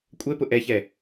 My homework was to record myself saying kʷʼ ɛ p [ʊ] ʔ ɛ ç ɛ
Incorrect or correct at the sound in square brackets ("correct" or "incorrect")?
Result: correct